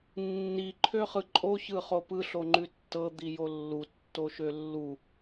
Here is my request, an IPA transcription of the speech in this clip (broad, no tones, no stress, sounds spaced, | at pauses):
nː i ǃʰ ø χ ɯ ǃʼ o ç ɯ χ o p ɯ ɬ o ŋ͡ǃ ʉ tː ɤ d̪ i j o lː u tː o ʃ ø lː u